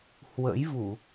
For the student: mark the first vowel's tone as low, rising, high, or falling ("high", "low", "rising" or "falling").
rising